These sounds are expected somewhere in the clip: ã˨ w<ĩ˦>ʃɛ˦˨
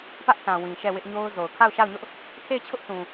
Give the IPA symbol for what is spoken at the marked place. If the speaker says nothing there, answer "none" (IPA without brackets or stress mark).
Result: ĩ˨